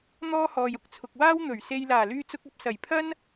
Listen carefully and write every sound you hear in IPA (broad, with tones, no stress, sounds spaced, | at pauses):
n̪ ɔː˥ h ɔː˨ j ʊ˥ k̚ t͡sʰ ʊ˨ k̚ w aː˥ w n̪ ɵ˨˩ ɥ s e˧ j l aː˨˩ l yː˧ t͡s ʊ˧ k̚ ɐ˧ p̚ s ɐ˨˩ j pʰ ɐ˥ n